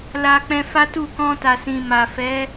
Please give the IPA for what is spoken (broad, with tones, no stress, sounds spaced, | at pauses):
l a˧ k͡p ɛ̃˧ f a˦ t u˦˨ k ɔ̃˧ t a˨ s ĩ˨ m a˨ f ɛ˨˦